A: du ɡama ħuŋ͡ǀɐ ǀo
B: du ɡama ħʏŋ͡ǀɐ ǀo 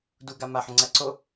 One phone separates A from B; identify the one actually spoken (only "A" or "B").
B